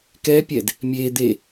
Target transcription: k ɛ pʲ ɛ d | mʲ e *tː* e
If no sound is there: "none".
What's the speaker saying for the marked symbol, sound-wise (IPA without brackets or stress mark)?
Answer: d̪